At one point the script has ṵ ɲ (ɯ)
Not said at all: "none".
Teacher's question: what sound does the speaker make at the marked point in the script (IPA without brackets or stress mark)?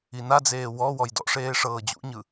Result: ɯ